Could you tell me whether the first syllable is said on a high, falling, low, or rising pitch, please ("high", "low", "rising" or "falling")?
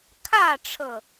falling